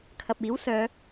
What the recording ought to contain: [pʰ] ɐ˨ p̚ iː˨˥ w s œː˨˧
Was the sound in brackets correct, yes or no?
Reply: no